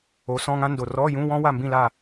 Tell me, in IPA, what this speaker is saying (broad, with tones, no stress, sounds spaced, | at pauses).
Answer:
o˩˥ s ɔ̃˧˥˧ ŋ ã˥ n d o˨ r ɔ˧˥˧ j ũ˧˥˧ w ɔ̃˥ w a˥˨ m b ĩ˥˨ l a˥˨